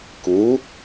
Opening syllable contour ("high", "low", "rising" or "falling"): rising